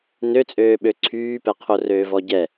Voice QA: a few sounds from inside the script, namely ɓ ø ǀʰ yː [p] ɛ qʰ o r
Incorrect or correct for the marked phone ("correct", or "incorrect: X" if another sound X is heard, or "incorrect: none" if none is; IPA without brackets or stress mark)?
correct